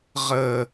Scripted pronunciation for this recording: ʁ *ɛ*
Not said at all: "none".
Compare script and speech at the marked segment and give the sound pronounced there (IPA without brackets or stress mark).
ə